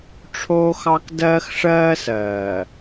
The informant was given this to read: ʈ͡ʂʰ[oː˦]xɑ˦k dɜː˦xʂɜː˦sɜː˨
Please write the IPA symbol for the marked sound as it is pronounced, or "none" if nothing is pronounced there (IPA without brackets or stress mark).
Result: oː˦